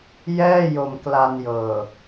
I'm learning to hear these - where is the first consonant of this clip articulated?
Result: palate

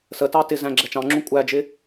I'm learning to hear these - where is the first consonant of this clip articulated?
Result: tongue tip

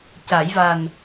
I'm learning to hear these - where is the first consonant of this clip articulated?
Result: palate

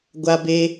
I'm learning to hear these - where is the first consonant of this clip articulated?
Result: velum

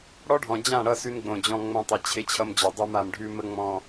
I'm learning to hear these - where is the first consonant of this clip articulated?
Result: retroflex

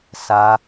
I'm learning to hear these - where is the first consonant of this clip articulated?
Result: tongue tip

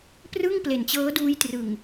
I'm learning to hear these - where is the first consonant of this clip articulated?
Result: lips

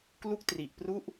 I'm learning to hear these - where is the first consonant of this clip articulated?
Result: velum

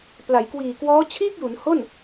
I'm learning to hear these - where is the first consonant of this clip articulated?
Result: lips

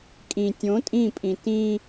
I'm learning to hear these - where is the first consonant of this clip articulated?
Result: velum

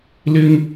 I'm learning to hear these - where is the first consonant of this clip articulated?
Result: tongue tip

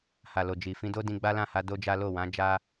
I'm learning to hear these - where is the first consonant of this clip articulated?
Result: throat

